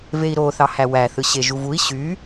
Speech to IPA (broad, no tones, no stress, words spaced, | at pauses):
vei̯ɾo θɑhæwæ θɯɕeʒuvui̯ ɕy